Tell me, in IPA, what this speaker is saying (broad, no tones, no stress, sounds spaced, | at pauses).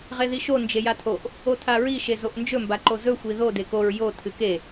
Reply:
ʁ e ð i ʃ o n d͡ʒ e j a tʰ o ʔ | o tʰ a ɹ i ʃ e z o ʔ n d͡ʒ ɵ m b a ǃ o z ɵ xʷ i ð o d e k o ɹ j o tʰ ɨ k e